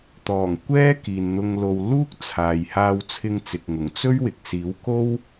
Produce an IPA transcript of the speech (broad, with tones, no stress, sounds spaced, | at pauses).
t̪ ɔː˨˩ ŋ kʷ ɛː˥ k iː˨ n n̪ ʊ˧ ŋ l o˧ w l uː˥ k̚ t͡sʰ aː˨ j h aː˧ w t͡sʰ ɪ˧ ŋ t͡s ɪ˨ k̚ ŋ ʊ˨˩ ŋ t͡s ɵ˥ ɥ w ɪ˨ k̚ s iː˨˥ w k o˥ w